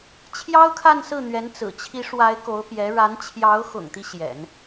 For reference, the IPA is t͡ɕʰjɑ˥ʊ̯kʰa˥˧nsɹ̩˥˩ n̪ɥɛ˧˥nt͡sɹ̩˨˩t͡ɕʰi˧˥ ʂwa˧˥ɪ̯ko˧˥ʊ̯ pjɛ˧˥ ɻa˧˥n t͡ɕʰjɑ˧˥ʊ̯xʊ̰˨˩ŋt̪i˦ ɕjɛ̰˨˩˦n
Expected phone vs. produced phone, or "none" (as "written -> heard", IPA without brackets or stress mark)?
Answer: none